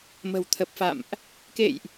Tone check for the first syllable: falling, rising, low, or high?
low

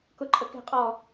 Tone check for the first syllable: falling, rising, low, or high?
high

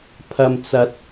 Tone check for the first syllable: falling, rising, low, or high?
low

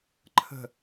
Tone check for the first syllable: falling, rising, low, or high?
falling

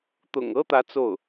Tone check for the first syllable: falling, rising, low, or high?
low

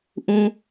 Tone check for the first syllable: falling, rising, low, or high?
high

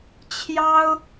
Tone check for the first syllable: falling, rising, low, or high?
high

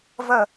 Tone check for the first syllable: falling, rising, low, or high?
falling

